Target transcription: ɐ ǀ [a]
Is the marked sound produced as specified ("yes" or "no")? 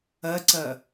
no